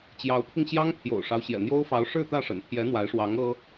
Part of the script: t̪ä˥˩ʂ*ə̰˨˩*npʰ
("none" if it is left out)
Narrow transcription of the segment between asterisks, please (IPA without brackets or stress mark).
ə̰˨˩